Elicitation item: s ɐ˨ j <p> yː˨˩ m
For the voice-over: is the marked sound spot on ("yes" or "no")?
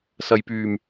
yes